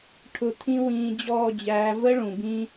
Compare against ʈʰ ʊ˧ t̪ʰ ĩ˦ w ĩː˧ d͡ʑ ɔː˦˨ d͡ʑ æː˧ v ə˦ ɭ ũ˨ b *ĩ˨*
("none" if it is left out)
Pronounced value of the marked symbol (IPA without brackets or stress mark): ĩ˦